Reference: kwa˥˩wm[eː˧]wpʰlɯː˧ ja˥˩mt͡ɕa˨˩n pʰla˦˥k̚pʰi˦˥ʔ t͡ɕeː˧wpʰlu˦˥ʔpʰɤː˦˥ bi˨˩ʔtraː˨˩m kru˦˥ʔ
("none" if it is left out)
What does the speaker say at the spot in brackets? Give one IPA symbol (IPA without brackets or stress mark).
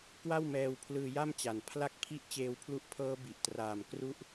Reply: ɛː˧